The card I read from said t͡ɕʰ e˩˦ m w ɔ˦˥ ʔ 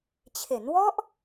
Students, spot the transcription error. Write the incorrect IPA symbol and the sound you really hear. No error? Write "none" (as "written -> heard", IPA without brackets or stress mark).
m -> n